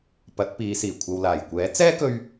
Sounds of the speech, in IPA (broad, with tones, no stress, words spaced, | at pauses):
pɐ˨˥t̚piː˨˧siː˨˩ kʷʰɐ˨wlaː˨˩j kʷɛː˨˥t͡sɛː˥kɵ˧ɥ